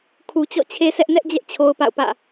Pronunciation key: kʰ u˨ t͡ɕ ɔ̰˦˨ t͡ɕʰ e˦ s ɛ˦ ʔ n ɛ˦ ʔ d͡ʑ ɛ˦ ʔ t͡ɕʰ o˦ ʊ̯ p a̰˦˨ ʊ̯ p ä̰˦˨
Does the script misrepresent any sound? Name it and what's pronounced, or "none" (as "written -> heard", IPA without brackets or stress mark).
none